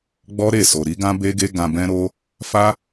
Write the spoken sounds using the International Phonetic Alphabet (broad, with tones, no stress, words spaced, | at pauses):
ɡ͡bɔ˦ɾe˦˨so˨ ɾi˨˦ɡã˦be˦ɡe˦ ɡã˧bɛ̃˦ɾo˦ | fa˦